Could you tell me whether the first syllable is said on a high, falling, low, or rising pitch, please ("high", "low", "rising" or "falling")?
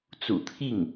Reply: low